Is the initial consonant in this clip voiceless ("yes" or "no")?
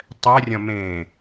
yes